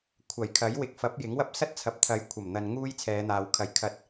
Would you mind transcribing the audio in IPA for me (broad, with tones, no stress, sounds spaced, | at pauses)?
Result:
kʷʰ ɐ˨˩ j kʰ ɐ˨˥ j w ɪ˨˥ k̚ f ɐ˨˥ p̚ j ɪ˨˥ ŋ w ɐ˥ p̚ s ɐ˥ t̚ t͡sʰ ɐ˨ p̚ t̪ʰ ɐ˨˥ j kʷʰ ɐ˨˩ m n̪ ɐ˨ n ŋ uː˥ j t͡sʰ ɛː˨˧ n̪ aː˨ w kʰ ɐ˨˩ j kʰ ɐ˨˥ t̚